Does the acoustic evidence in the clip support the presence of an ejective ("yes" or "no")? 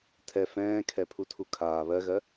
no